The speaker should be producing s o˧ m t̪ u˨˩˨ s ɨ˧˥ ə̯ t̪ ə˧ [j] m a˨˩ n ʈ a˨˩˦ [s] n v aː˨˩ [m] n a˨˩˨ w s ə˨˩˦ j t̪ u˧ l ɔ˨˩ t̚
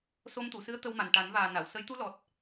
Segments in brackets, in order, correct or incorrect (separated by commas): incorrect, incorrect, incorrect